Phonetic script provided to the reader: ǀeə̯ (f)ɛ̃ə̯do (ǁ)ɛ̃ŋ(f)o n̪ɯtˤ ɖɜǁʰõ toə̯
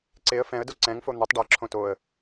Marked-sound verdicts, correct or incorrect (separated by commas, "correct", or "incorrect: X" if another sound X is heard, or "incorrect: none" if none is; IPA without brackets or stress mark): correct, incorrect: ǀ, correct